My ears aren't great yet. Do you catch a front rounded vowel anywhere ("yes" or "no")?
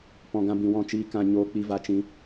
no